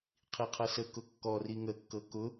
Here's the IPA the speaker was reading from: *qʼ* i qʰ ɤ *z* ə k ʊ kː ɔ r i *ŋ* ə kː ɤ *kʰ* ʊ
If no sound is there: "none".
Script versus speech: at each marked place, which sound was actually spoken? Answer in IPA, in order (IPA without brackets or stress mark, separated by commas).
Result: qʰ, s, ŋ, k